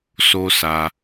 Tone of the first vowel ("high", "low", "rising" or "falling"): high